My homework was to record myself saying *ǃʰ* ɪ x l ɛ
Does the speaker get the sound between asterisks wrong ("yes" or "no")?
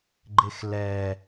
yes